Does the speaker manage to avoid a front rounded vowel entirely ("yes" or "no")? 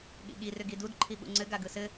no